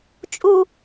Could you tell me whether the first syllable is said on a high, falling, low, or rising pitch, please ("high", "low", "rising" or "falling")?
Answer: high